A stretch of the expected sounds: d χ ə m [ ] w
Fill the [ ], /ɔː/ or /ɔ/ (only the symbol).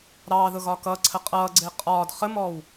ɔː